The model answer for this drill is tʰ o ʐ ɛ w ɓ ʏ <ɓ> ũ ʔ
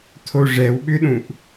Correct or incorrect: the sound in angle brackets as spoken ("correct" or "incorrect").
incorrect